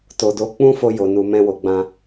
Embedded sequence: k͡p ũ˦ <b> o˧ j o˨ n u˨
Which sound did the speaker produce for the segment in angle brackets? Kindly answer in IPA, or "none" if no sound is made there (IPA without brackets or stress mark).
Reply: f